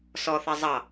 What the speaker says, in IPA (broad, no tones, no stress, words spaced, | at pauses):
sɔθɜ zˤɑ